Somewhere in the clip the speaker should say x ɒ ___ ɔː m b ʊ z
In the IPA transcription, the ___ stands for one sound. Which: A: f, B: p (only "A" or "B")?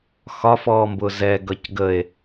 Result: A